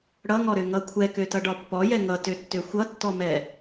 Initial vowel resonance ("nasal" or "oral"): oral